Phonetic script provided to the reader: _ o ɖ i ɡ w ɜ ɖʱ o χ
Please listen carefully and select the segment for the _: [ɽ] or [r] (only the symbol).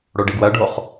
ɽ